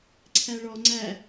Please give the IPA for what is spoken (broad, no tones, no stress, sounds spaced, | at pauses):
ǀʰ æ ɭ ɔ ŋ͡ǀ æ